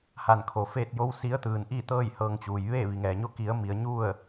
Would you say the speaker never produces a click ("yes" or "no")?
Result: yes